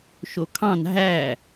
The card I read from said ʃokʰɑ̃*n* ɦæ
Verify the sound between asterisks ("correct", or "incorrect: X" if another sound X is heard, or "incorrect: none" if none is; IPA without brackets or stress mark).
correct